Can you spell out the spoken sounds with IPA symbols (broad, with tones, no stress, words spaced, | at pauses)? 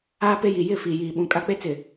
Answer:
aː˦pe˦ji˨ jɪ˦˨fiː˨jiː˨ɓũ˨ kʼa˦k͡pe˦t͡sɪ˨